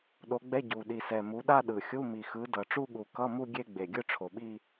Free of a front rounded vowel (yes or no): yes